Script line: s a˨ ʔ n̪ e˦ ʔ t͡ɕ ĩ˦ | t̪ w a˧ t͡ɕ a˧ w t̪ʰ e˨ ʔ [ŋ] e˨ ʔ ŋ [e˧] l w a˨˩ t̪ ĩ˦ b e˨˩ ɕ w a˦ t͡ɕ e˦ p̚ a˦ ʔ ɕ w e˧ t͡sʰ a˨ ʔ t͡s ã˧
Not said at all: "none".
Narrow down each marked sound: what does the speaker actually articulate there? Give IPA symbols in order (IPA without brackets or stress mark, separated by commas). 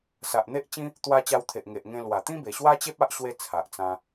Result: ŋ, ẽ˧